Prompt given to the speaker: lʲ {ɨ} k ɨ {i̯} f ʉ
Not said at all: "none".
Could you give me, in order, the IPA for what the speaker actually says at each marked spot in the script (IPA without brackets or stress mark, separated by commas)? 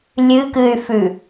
ɨ, y̯